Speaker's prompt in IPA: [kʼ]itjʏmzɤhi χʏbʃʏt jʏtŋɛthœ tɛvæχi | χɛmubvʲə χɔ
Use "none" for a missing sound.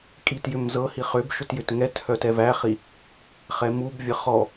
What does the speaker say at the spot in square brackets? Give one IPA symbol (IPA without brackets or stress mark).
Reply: kʼ